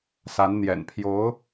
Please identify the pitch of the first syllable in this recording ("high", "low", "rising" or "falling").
rising